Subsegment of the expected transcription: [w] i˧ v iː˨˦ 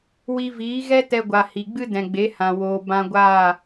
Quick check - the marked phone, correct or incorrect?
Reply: correct